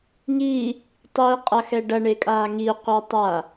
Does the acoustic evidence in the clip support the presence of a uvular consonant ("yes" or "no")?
yes